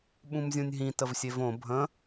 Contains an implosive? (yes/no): yes